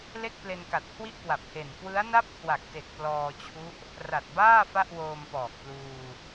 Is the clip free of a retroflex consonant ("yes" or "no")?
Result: yes